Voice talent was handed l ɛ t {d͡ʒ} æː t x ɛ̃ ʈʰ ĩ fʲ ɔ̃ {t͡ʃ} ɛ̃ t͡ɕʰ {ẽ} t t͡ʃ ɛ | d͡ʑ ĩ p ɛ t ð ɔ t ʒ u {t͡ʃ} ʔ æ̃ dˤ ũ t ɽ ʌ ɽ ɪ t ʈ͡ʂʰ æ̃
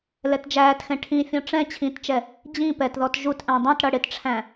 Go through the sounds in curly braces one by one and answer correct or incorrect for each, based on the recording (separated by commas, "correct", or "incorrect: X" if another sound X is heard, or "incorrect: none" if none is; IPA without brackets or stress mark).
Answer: correct, incorrect: ʈ͡ʂ, incorrect: ĩ, incorrect: t